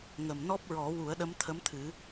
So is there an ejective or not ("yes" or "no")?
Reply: no